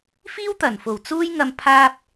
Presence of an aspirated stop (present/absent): present